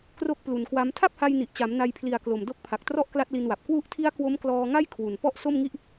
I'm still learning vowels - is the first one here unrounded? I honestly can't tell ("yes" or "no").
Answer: no